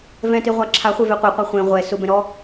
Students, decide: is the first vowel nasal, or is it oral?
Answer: nasal